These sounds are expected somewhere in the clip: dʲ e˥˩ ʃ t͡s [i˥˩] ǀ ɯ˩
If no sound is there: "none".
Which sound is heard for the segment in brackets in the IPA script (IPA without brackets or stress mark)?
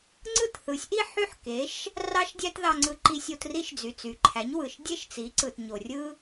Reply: i˩˥